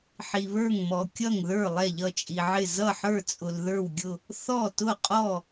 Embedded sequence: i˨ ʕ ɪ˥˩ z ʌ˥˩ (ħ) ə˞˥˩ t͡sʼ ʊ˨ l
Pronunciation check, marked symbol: correct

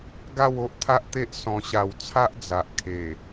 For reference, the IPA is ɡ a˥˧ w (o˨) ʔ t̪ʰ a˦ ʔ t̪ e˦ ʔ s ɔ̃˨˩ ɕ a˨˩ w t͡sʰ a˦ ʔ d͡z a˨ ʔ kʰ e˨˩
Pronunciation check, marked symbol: incorrect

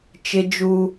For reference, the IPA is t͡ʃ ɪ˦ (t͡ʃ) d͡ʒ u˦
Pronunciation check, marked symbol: incorrect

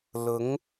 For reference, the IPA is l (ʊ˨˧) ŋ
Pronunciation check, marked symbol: correct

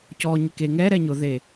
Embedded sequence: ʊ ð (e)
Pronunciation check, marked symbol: correct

